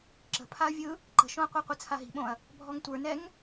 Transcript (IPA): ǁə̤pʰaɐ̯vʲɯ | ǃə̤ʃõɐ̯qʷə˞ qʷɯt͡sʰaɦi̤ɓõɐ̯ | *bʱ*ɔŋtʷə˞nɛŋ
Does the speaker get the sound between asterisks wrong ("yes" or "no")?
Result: no